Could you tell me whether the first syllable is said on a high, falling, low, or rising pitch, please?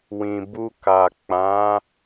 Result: low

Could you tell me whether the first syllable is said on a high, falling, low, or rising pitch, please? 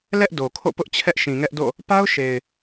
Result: high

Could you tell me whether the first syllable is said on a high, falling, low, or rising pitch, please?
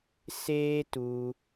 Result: high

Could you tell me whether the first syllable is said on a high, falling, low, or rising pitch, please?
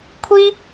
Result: high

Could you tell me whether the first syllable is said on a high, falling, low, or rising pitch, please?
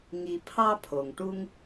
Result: low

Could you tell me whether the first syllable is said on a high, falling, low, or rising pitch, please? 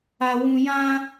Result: high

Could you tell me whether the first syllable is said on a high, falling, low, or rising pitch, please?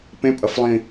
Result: rising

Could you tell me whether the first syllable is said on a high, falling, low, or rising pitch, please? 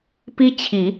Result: high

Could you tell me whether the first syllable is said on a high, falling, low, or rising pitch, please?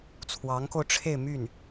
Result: rising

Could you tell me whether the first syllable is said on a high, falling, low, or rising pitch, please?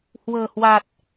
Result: low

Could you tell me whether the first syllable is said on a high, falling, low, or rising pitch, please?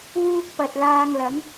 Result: high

